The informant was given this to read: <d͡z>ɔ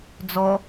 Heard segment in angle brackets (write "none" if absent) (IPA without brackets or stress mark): d͡z